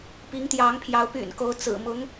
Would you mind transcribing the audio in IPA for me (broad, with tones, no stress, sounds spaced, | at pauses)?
p i˧˥ ŋ t̪ j ɑ˧˥ ŋ pʰ j ɑ˧˥ ʊ̯ p y̰˨˩ n k o˧˥ ʊ̯ t͡s ɹ̩˨˩ m ʊ˧˥ ŋ